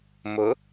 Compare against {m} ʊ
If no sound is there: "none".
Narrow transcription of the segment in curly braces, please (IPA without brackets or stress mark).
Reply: m